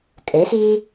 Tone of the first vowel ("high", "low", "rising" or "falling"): rising